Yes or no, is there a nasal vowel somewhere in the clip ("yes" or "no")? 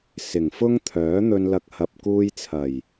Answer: no